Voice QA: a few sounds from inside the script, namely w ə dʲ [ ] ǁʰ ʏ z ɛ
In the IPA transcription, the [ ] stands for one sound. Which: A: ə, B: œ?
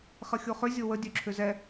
B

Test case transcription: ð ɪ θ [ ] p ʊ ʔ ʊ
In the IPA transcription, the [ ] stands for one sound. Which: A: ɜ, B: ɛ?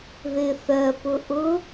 A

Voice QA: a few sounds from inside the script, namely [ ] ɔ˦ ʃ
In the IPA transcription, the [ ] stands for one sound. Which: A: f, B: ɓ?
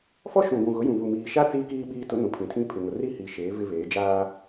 A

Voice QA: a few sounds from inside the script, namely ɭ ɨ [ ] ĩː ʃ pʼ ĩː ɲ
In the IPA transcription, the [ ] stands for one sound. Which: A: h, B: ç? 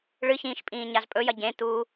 B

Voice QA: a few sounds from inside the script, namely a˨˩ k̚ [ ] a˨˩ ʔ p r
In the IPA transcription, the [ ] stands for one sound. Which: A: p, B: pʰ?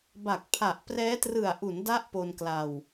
B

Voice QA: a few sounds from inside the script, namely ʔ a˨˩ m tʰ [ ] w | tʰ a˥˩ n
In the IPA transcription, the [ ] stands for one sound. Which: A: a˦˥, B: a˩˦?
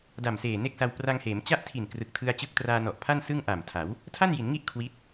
B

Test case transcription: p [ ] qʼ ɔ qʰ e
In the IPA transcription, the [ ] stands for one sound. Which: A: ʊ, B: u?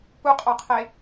B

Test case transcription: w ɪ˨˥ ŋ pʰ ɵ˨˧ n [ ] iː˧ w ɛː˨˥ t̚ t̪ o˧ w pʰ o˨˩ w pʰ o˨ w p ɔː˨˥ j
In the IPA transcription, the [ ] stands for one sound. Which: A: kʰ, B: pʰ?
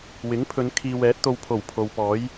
A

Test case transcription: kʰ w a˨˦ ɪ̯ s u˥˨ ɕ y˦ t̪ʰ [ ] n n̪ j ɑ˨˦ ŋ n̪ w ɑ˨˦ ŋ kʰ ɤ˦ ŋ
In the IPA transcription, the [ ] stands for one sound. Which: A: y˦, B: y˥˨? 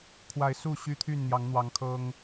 B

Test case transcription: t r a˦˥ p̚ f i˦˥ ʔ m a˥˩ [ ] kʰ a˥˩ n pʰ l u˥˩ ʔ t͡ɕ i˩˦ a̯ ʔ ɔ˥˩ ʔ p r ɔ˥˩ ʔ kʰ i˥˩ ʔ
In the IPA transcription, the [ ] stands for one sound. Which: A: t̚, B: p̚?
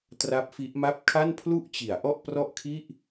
B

